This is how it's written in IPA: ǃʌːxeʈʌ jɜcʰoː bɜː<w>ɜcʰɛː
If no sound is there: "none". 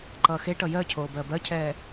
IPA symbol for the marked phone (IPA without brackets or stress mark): b